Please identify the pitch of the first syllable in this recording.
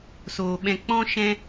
low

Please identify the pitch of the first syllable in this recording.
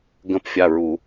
rising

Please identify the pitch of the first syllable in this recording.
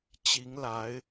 rising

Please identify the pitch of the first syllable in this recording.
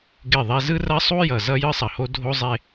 falling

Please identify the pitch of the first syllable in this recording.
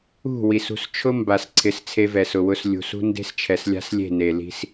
falling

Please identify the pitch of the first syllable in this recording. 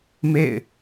falling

